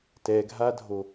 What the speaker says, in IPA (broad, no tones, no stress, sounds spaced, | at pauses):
t ɛ ɡʱ a dʱ o